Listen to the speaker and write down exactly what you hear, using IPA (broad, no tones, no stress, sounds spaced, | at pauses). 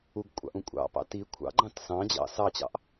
u ɡ kʷʼ ɑ̰ ʔ ũ kʷʼ ɑ̰ p ɑ̰ t i kʷʰ ɑ̰ ɡ͡ǃ ɑ̃ t s ɑ̃ d͡ʑ ɑ̰ s ɑ t͡ɕ ɑ̰ ʔ